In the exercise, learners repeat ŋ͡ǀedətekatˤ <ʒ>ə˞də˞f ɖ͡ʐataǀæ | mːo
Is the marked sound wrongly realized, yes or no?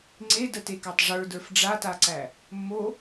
yes